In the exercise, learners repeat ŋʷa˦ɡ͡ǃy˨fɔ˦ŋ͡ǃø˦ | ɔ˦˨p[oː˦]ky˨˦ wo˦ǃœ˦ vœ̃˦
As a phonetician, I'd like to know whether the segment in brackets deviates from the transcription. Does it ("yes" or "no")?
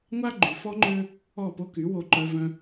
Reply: yes